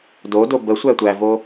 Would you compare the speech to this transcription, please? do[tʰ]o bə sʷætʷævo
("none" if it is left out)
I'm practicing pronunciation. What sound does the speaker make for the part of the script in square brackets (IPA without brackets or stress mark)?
d